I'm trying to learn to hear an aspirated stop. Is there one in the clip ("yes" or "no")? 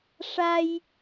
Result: no